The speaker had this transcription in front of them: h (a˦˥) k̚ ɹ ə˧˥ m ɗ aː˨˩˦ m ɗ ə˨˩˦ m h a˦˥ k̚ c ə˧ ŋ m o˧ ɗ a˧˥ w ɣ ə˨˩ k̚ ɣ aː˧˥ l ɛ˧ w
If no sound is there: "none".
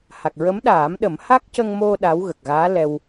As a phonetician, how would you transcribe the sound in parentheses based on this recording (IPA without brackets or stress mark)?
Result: a˨˩